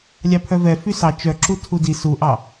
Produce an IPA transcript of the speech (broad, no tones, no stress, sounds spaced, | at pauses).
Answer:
lʲ ɑ pʰ œ v ɛ f y s ɑ t͡ʃ œ ǁ u tʰ u d i s u ʔ ɑ